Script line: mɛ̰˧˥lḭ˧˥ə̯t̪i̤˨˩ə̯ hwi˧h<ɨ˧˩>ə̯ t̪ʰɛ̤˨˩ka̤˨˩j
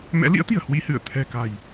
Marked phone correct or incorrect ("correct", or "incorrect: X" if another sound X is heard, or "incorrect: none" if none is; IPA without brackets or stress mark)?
correct